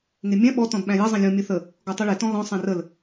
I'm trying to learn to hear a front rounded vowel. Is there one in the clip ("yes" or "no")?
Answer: no